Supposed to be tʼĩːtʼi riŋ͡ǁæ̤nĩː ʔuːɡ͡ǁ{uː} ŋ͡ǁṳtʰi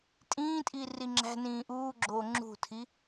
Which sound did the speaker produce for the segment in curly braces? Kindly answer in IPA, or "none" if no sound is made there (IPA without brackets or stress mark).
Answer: oː